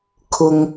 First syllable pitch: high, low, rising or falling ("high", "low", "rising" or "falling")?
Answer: high